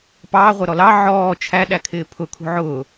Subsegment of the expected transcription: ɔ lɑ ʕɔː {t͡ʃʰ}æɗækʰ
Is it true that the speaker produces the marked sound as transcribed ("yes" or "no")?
yes